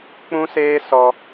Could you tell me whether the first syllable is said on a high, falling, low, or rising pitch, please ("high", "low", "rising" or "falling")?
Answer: high